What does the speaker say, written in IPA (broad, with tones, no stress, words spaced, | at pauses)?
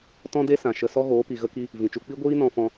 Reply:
tɔ̃˦de˦ sã˨ʃə˧ sɔ˦ɣoː˨˦pi˨ ɣə˧ki˧ | vĩ˨t͡ʃu˧ k͡pi˦ɡʷiː˦ nɔ̃˧fɔ̃˧